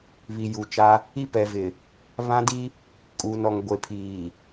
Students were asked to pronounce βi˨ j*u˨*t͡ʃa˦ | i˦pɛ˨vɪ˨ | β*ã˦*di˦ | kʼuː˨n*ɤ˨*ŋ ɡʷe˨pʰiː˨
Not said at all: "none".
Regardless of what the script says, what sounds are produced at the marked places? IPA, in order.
u˨, ã˦, ɔ˨

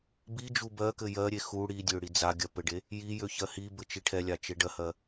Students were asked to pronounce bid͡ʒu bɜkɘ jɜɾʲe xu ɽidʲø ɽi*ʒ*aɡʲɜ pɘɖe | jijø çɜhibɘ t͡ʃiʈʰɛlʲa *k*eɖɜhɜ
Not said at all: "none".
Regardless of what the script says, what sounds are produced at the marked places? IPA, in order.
d͡z, t͡ʃ

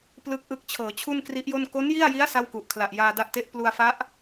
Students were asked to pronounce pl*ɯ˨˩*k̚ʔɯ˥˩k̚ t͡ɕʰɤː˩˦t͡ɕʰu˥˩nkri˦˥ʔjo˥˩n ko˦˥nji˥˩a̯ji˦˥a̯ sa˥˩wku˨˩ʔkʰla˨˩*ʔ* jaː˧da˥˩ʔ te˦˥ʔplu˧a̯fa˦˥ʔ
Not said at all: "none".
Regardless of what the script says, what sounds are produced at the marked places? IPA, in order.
ɯ˥˩, ʔ

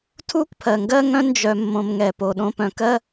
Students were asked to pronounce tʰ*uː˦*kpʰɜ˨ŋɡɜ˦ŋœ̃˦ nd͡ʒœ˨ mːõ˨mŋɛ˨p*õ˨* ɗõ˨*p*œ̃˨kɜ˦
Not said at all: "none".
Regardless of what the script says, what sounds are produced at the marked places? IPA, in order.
u˦, o˨, p

